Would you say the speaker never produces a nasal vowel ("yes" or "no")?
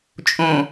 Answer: no